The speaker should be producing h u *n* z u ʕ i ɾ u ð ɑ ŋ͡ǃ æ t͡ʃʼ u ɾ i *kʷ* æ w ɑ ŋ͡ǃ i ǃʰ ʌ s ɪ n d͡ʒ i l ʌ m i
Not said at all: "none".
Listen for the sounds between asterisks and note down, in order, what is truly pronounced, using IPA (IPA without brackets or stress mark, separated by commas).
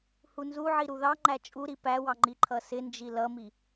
n, p